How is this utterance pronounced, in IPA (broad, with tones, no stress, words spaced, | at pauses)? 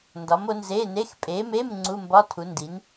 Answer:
ndɒ˨˥mo˨˥nze˧˥˧ne˧˥˧x pʼe˨˥me˧˥˧m ŋ͡ǀu˧˥˧mbɒ˧˥˧tʰu˨˥ndi˨˥n